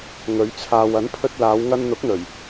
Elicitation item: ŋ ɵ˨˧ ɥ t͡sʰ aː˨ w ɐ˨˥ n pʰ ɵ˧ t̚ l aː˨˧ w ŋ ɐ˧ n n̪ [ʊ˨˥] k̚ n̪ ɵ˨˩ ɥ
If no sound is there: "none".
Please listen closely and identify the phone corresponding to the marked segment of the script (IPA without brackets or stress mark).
ʊ˨˥